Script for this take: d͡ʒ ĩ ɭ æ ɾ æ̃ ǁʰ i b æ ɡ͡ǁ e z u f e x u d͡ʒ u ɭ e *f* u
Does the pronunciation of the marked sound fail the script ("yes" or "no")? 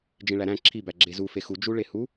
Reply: yes